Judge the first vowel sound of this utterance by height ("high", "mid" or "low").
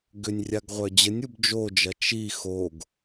high